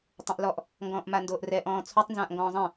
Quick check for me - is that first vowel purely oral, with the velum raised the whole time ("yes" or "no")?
no